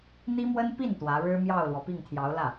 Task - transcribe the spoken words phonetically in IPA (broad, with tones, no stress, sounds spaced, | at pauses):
n̪ i˥ m w ə˥ n p i˥˩ n t̪ w ä˧˥ ɻ ɻ̩˥ m j ɑ˥˩ ʊ̯ l w ɔ˩ p i˥˩ ŋ t̪ʰ j ɑ˧˥ ʊ̯ l ä˥˩